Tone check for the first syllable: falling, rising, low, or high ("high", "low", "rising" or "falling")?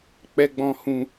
high